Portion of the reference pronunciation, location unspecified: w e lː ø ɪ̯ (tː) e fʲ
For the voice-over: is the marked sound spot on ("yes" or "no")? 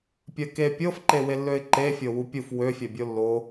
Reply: no